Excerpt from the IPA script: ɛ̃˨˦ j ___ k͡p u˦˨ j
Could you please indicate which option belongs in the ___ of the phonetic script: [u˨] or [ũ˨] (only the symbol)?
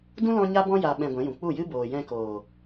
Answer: ũ˨